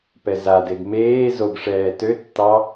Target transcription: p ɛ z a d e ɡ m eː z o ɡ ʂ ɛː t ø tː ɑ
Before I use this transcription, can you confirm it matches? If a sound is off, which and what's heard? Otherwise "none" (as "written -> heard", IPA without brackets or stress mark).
none